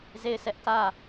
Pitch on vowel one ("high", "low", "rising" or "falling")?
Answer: falling